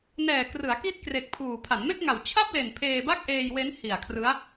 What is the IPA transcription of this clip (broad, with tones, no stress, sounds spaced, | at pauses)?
n ɛː˨˩ k r ɯ˩˦ a̯ k i˦˥ t̚ k r e˨˩ k̚ pʰ uː˨˩ pʰ a˩˦ n m e˥˩ k̚ ŋ a˨˩ w t͡ɕʰ a˥˩ p̚ l e˨˩ n pʰ eː˧ b a˥˩ k̚ ʔ eː˧ j w e˦˥ n h i˨˩ a̯ kʰ r ɯ˦˥ a̯